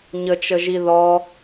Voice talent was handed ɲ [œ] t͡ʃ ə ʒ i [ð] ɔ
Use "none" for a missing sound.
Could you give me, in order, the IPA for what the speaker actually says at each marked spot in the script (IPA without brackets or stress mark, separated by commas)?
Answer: ə, ð